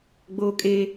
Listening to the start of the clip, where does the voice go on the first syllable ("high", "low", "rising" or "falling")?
high